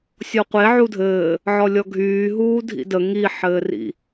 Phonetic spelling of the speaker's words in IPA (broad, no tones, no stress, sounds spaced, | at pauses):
sʲ ɔ qʷ e ʕ u dʱ ɘː | ʕ ɔ lʲ ɔ ɡʱ yː ɦ uː dʱ ḭ d ə ŋ i ħ ɘː r ḭ